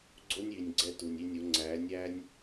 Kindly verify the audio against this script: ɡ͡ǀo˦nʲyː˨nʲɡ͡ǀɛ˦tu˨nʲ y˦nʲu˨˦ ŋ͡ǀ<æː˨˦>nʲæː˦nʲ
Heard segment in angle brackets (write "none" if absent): æː˨˦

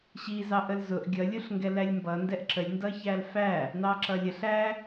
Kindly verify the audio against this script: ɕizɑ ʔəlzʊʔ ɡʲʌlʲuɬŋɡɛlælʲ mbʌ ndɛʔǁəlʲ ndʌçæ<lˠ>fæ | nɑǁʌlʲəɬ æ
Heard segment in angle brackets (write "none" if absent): l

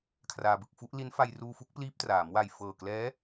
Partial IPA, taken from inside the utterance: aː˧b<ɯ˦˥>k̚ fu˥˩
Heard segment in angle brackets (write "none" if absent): ɯ˨˩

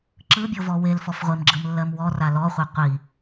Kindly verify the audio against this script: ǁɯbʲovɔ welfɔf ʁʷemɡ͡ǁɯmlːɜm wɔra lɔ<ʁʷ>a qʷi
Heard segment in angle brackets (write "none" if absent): χʷ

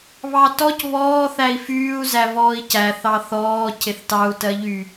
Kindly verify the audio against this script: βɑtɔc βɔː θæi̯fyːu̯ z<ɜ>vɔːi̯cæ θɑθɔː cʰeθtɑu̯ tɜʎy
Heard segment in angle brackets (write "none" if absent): æ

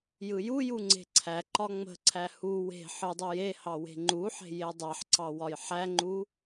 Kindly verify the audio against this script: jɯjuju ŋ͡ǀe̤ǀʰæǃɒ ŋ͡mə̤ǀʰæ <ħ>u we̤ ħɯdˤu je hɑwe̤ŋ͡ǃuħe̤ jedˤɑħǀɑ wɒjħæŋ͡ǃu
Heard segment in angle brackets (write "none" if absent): h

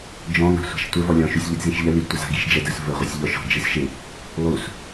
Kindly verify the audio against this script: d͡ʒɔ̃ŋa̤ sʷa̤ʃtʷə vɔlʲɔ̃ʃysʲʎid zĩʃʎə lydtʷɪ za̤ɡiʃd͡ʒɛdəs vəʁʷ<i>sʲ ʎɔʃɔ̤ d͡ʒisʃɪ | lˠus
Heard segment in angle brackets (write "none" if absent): ɪ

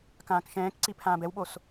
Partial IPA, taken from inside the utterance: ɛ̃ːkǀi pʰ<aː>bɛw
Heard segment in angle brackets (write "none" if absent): ãː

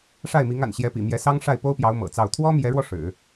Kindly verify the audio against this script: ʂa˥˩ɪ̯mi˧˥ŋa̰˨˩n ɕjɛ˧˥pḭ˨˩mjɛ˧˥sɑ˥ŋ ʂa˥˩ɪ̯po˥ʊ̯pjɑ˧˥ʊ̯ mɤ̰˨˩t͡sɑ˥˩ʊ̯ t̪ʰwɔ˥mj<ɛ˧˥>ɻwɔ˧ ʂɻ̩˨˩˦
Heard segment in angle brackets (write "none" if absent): ɛ˧˥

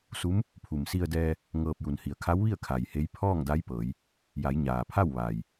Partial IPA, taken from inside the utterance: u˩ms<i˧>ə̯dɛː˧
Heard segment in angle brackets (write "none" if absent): i˧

